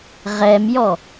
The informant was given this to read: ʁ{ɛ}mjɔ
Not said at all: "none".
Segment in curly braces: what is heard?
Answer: ɛ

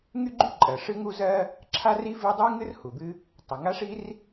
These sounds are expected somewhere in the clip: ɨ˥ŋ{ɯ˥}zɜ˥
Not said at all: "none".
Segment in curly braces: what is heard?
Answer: u˥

